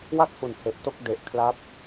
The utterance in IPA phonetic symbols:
w a˥˩ k̚ h u˨˩ n h e˨˩ ʔ t o˥˩ k̚ d e˨˩ ʔ kʰ l a˦˥ p̚

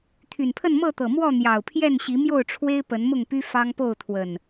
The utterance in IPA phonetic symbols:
t̪ʰ y˨˩ n pʰ ə˥˨ n m ɤ˥˨ t̪ ɤ˨˩ m w ɔ˥˨ n̪ j ɑ˨˩ ʊ̯ pʰ j ɛ˥˨ n ɕ i˨˦ m j o˥˨ ʊ̯ ʈ͡ʂʰ w e˦ ɪ̯ p ə˨˦ n m ʊ˥˨ ŋ p y˦ f ɑ˦ ŋ p o˥˨ ʊ̯ t̪ʰ w ə˨˩ n

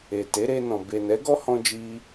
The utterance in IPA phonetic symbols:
e˨ t e˨˦ ɾ e˧ n ɔ̃˨ b e˨ n ɛ˨˦ ɡ ɔ˦ h ɔ̃˧ d͡ʒ i˧

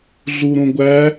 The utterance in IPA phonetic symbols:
ɮ u ɾ õ ɡʷ æ

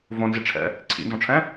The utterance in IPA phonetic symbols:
v õ n z i ʈ͡ʂʰ ɛ̰ | ǀʰ ḭ n z ɔ̃ ʈ͡ʂʰ ɛ̃

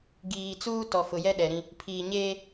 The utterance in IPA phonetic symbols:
ɡ iː˨ t͡s uː˦ t ɔ˨ f ʊ˨ j ɛ˦ ɗ ɛ˨ ɾ ĩ˦ | pʰ iː˨ ɲ eː˦

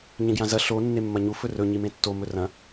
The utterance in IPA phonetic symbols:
ɲ ẽ ɡ j ã z ɐ ɬ o nː e mː ɐ ɲ u f ɵ r ɵ ɲ i m ẽ tː o m ɵ r ɐ̃

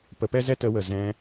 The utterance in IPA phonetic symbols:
p ə˧ p ɛ˦ z ɛ˦ t ə˧ w ə˨ z ɛ̃˧

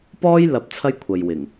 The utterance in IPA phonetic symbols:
p ɔː˥ j l ɐ˨˥ p̚ t͡sʰ ɐ˥ j kʷʰ ɐ˨ j w ɪ˨˩ ŋ

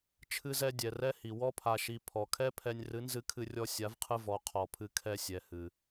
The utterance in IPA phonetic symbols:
t͡ʃʰ ɨ˧ z ɛ˧ dʲ ɛ˨ r ɛ˦ h i˨ w ɔ˧ pʰ a˨ ʃ i˨ pʰ ɔ˨ kʰ ɛ˦ pʰ ɛ˧ nʲ r ɨ˨˦ n z ɨ˧ kʰ ɨ˧ rʲ ɔ˧ sʲ a˨˦ v qʰ ɨ˧ v ɔ˨˦ qʰ ɔ˨ pʰ ɨ˧ kʰ ɛ˧ sʲ ɛ˨ h ɨ˨

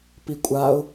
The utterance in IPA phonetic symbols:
p i kʷʼ a ʊ̯

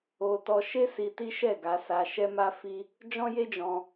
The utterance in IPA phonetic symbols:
o˧ t ɔ˦ ʃ e˦ s i˧ t i˦ ʃ ɛ˦˨ ɡ a˧ s a˧ ʃ ɛ˦ m a˦ f i˦ | d͡ʒ ɔ̃˦ j e˦ d͡ʒ ɔ̃˧

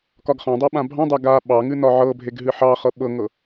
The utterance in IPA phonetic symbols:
k ɒ ɡ χ ɑ̃ dˤ ɑ ɓ ã bʱ ɑ̃ dˤ a ɡ a ɓ ɑ ŋ ɨ n ɒ ʕ ɤ bʱ e ɡ ɦ ɨ ħ ɑ χ ɤ ɓ ɤ ŋ ɤ

